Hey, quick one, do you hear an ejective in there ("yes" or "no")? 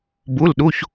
no